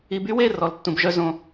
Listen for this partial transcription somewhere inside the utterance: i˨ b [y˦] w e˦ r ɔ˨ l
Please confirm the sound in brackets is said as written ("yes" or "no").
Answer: yes